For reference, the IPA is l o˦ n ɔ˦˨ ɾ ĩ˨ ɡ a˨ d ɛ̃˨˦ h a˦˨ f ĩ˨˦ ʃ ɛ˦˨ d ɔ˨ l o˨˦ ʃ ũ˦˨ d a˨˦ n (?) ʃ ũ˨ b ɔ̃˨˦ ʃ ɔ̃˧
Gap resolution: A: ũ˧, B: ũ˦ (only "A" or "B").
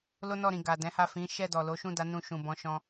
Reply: A